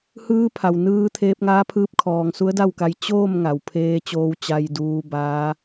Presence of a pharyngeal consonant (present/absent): absent